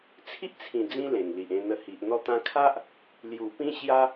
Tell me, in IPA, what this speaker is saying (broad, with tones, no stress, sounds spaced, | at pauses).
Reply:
t͡sʰ i˦ ʔ t͡sʰ ĩ˨˩ d͡z ĩ˦ l ẽ˨˩ ŋ l i˨ ʔ ẽ˧ n̪ ə˧ h i˨ ʔ n̪ ɔ˦ t̪ ã˧ kʰ a˦ ʔ | l j u˨˩ p ĩ˦ ɕ j a˦